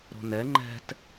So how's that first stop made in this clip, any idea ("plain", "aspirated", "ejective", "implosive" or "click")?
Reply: click